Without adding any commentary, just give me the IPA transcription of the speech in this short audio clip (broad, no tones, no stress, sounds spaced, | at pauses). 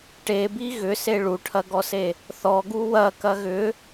ʈ e b i ɣ ʏ s e ɭ u ʈʰ ɐ ɡ ɔ s e | θ ɔ ɡ u w ɐ k ɐ ɣ ʏ